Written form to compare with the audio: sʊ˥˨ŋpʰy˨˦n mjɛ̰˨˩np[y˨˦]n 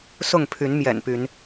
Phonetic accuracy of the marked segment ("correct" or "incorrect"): correct